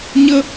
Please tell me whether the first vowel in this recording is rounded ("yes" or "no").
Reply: no